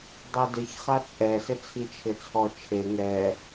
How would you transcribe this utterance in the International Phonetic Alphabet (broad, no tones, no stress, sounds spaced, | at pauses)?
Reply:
dˤ ɛ d ɪ ç χ a t͡sʼ ɛ s ɪ t͡sʰ i t͡ʃʰ ɪ t͡sʰ ɔ t͡ʃʰ e ŋ ɛ